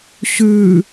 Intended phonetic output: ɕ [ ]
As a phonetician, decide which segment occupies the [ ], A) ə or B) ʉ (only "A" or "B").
B